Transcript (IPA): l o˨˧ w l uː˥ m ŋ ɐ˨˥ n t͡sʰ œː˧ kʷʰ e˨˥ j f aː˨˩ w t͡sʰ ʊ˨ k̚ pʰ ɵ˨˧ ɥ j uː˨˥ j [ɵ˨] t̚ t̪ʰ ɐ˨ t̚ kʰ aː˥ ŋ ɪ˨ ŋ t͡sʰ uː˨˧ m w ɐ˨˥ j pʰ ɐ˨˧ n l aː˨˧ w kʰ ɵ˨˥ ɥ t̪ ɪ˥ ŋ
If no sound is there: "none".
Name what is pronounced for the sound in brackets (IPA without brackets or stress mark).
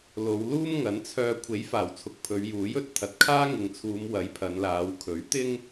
ɵ˨